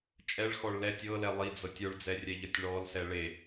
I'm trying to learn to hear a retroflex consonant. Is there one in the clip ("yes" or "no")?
yes